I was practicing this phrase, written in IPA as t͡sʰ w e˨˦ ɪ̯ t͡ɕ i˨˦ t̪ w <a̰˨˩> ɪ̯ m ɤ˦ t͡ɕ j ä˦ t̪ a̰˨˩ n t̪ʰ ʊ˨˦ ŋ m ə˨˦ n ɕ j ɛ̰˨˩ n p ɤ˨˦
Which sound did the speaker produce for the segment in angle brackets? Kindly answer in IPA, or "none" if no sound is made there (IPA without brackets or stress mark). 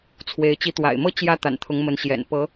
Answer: a̰˨˩